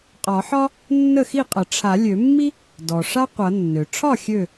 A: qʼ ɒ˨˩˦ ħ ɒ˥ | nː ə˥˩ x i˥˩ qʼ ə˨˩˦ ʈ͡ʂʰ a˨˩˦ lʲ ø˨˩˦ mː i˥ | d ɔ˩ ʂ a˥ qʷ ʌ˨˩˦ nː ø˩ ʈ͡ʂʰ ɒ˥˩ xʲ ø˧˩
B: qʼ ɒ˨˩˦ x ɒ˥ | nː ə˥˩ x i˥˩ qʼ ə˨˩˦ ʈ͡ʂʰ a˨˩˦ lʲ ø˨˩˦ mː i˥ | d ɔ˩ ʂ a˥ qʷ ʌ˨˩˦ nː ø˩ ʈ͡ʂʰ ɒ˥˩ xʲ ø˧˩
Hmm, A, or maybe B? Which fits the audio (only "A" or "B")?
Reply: A